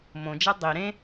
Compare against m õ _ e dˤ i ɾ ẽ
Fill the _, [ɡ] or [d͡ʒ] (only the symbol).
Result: d͡ʒ